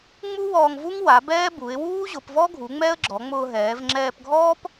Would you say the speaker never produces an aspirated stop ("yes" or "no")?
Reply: yes